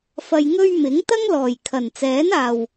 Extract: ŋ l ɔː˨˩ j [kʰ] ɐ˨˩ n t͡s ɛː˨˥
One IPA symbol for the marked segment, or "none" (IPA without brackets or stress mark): kʰ